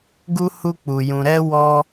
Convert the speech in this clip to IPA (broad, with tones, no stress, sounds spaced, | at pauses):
ɡ u˦ h u˦ k͡p u˧ j ũ˧ ɾ ɛ˦ w ɔ˦